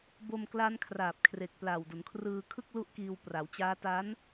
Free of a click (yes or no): yes